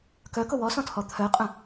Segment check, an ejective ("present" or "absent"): present